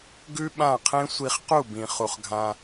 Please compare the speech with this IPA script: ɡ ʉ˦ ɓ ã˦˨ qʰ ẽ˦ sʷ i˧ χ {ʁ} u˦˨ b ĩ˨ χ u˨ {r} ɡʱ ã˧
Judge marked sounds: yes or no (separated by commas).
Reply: no, no